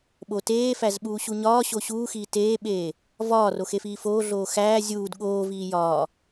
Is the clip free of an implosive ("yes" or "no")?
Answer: no